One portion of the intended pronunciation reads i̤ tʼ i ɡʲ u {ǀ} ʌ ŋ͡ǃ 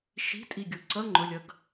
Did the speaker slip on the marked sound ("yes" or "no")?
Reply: no